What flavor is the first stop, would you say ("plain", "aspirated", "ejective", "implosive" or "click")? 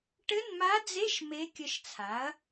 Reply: plain